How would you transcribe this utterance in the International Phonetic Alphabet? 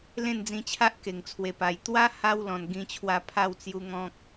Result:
l ẽ˥˧ n d͡z ĩ˧ t͡ɕʰ a˦ ʔ k e˨˩ ŋ t͡sʰ w e˨˩ p a˨˩ j t̪ w a˦ h a˧ w l ɔ̃˨˩ n ɡ ĩ˧ t͡ɕʰ w a˧ pʰ a˥˧ w t͡s j u˧ ŋ ɔ̃˦ k̚

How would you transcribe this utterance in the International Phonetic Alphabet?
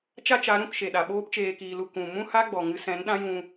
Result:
t͡ʃ a˦ t͡ʃ a˨˦ ɾ ũ˦˨ k ʃ e˨ ɗ a˨ ɓ oː˦ p t͡ʃ eː˧ k iː˧ l u˧ k ũ˨ m ũ˦ h a˦ ɡ͡b ɔ˨ ŋ ɨ˦ s ɛ̃˨˦ n ɗ ã˦ j ũ˧

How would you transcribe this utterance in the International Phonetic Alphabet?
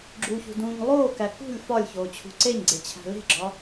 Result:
ɡ͡ǁ u ç ṳ d ũː ɲ lˠ oː k æ k ṳ lʲ f ɒ lʲ ç oː t͡ɕʰ ṳ ǀ e ɲ ɡ͡ǀ e t͡ɕʰ æ̤ l e̤ ɡ͡ǁ ɒ

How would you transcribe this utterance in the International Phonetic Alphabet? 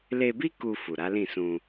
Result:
l e˧ b i˦ k u˧ f u˨ ɾ a˨˦ l ĩ˦˨ s ũ˧

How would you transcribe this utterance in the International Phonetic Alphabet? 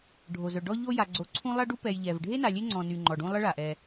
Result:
ɖʱ o˩ z œ˩ ɖ ɔ˦ ʎ o˦ j a˨ ɡ͡ǀ o˨ ǀʰ ũ˥ lˠ a˦ ɖ u˦ p ɛ˨ j ʎ ɛ˩ v ɖʱ e˥ n a˨ lʲ e˦ ŋ͡ǀ ɔ̃˨ n y˨ ŋ͡ǃ ɔ˩ ɖ ũ˦ lˠ ə˥ ɭ a˩ ʔ ɛ˨

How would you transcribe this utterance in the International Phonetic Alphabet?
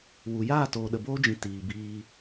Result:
w u˨ j aː˦˨ t oː˨ ɗ ə˨ b oː˦ d͡ʒ ĩ˨ t iː˨ b iː˧

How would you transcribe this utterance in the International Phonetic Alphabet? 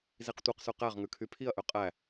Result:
z i q tʷ ɛ q s ʉ q æ ʁ ŋ ʉ kʰ y pʰ i ɐ̯ ʔ ø qʼ æ

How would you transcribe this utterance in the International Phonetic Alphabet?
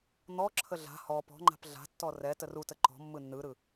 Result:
n̪ ɔ ǁʰ ə ɮ a̤ h ɔ p ɔ̤ ŋ͡ǃ a̤ p ɮ a̤ tː ɔ r ɛ t ə r u t ə ǃ ɔ̤ mː ɯ nː ɯ ɾ ɯ

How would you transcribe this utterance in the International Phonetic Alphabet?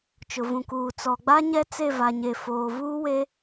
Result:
t͡ʃ ʊ˨ v ũ˨ k uː˨ t͡s ɔ˨ ɡ͡b a˦ ɲ ɛ˦ t͡s e˦˨ v a˨ ɲ e˨ f oː˨ v uː˦ w e˦

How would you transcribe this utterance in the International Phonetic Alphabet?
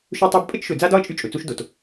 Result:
ʃ ɵ˦ tˤ a˦ b pʼ ə˦ t͡ʃ ʃ ɵ˨ d͡z a˦ d ɒ˦ ə̯ t͡ʃʼ y˦ t͡ʃʼ ɵ˨ t͡s u˦ ʃ d o˨ t

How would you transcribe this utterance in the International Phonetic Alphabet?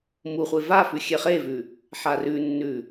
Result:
m u χʷ e v a f ʉ xʲ e χ e v ʉ | ħ a r ʉ nː ʉ

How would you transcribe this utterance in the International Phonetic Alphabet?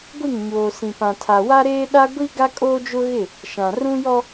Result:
ɡʷ i˦˨ ŋ ɲ oː˨ s ĩ˨ p ã˨ tʰ a˨ w a˦ ɾ eː˦ ɗ a˦ ɡʷ i˦ ɡ a˦ kʼ oː˦ d͡ʒ ʊ˦ ɣ ɪ˦˨ | ʃ ã˨ r ũ˦ j ɔ˦

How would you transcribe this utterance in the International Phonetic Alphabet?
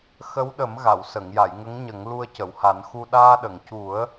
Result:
x ə˧˥ w ɗ ə˨˩˦ m ɣ a˨˩˨ w s ə˨˩˨ ŋ j a˨˩˨ j ŋ ə˧˥ ŋ ɲ ə˨˩˦ ŋ l u˧ ə̯ c ə˨˩˨ w h a˨˩˦ n x u˧ ɗ aː˧ ɗ ə˨˩˨ ŋ c u˨˩˦ ə̯

